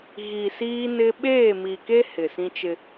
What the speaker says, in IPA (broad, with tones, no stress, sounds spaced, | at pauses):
ɣ i˨ s iː˦ n ɪ˦ ɓ eː˦˨ m i˨ k e˦ h ɪ˨ s ĩ˦ t͡ʃ ɪ˦